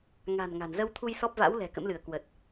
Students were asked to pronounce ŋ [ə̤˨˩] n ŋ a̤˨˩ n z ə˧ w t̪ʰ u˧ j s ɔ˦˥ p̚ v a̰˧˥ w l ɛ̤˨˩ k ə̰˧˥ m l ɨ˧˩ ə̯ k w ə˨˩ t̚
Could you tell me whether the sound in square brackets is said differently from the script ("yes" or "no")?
yes